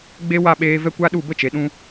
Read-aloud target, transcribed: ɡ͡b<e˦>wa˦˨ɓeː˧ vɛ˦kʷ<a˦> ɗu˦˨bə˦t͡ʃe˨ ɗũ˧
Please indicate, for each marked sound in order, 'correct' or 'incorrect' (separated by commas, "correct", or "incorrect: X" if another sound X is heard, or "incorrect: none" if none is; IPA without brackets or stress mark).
correct, correct